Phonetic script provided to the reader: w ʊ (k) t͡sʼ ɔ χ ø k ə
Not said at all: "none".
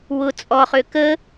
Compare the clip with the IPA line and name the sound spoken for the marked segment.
none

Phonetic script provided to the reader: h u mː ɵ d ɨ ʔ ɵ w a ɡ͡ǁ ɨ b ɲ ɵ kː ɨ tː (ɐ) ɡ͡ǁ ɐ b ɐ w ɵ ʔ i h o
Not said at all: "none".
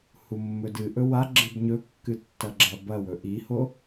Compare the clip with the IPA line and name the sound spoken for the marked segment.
ɐ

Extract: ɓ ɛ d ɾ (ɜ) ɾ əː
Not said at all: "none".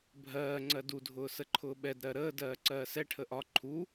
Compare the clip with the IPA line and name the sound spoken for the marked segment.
ɜ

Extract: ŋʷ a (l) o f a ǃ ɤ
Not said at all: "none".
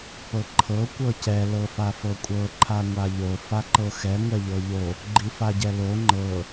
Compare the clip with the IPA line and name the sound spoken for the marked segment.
ʎ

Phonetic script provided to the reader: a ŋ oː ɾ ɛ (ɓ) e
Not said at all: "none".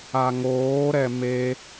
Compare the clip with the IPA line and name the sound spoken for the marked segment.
m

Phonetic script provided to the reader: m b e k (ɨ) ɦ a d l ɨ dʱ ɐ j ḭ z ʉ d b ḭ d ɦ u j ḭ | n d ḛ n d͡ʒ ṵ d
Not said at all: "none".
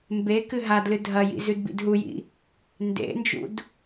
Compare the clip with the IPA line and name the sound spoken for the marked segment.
ɨ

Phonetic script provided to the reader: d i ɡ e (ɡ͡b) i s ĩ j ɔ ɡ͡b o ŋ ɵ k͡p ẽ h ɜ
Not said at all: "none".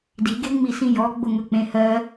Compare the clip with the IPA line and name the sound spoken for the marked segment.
ŋ͡m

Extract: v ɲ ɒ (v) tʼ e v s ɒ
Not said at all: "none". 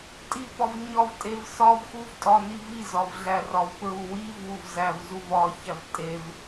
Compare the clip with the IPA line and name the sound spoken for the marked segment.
v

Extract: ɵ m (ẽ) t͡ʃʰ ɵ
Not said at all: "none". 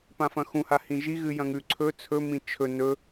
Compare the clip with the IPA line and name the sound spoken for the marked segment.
ĩ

